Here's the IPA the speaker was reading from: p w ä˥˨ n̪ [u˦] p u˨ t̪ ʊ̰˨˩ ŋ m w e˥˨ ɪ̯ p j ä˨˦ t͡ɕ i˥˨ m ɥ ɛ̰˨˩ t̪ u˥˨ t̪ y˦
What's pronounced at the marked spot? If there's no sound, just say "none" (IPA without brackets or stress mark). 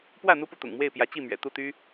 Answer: u˦